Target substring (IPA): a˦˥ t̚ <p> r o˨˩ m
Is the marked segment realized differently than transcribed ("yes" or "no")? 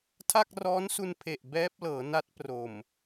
no